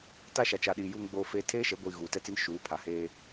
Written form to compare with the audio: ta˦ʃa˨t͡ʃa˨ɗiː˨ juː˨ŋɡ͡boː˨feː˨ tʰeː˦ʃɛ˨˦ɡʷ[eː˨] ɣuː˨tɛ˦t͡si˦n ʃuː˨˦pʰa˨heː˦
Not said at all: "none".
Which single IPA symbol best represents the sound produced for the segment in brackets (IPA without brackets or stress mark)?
iː˨